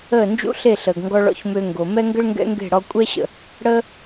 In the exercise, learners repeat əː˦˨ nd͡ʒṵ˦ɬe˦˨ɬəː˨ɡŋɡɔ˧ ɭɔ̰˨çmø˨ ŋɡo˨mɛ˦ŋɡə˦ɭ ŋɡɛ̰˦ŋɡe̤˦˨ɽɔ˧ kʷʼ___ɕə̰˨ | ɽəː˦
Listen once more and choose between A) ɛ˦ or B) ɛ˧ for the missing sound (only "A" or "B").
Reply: B